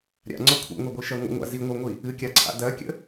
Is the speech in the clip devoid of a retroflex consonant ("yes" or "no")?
yes